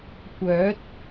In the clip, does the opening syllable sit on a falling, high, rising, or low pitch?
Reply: rising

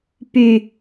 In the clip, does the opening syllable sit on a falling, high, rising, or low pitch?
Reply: low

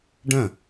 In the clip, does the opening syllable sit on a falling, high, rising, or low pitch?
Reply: falling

